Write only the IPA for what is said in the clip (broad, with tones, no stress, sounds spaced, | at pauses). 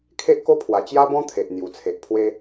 kʰ e˦ ʔ k o˦ pʰ w a˨˩ t͡ɕ j a˦ b ɔ̃˦ t̪ʰ e˨ ʔ n̪ j u˨˩ t͡sʰ e˨ ʔ pʰ w e˦